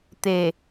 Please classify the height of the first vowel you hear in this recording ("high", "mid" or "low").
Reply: mid